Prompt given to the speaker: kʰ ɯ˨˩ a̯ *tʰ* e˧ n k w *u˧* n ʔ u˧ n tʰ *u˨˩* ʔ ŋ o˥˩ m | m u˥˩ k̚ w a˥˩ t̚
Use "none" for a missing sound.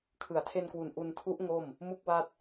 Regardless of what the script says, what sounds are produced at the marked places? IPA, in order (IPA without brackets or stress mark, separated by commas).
tʰ, u˨˩, u˦˥